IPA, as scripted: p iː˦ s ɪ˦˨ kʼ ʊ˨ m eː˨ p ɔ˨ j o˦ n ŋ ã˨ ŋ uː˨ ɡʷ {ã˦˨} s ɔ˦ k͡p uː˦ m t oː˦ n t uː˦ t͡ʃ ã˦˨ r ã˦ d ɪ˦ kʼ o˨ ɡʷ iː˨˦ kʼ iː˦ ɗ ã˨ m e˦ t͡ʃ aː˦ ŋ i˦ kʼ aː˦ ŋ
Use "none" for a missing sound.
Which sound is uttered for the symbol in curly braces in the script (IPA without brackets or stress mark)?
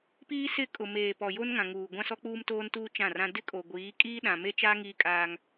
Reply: ã˦